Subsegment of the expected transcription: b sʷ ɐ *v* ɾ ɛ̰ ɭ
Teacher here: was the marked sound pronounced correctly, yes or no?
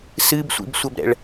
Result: no